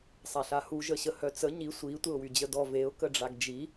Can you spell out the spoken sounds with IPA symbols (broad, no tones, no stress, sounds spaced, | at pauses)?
sˤ a ɬ a h u ʒ ə ɕ ə h œ t͡s ə ɲ i sʷ i tʷ e ʊ̯ w y d͡ʑ ə d ɔ v e ʊ̯ k ə ɖ͡ʐ a ɡ d͡ʒ i